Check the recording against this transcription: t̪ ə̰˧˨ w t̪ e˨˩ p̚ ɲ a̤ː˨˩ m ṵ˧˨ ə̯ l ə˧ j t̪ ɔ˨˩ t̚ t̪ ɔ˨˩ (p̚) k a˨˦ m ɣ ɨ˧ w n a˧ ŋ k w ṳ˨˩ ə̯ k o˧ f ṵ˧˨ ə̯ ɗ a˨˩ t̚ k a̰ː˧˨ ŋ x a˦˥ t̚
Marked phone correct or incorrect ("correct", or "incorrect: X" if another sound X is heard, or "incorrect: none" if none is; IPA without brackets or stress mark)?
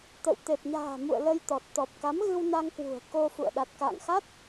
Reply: correct